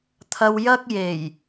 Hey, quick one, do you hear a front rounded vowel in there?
no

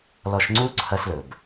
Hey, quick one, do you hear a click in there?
yes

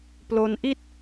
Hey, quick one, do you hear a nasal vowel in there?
no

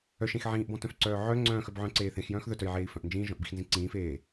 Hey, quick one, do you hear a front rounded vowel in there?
yes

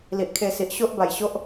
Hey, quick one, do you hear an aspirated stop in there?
yes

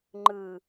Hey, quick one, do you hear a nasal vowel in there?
no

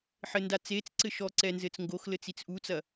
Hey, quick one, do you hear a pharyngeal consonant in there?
yes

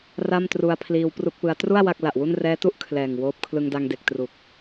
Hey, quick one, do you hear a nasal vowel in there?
no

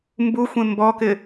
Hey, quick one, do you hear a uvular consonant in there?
no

